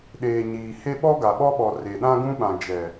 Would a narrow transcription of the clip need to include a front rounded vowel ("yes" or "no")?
no